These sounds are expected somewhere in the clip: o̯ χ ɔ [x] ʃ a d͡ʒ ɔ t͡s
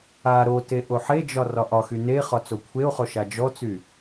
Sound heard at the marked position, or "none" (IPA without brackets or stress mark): none